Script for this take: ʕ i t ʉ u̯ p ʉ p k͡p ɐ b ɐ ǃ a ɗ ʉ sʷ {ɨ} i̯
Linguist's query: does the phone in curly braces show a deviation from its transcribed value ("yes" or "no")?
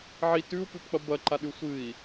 no